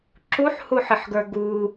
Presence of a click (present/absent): present